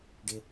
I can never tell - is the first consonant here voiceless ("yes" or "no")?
no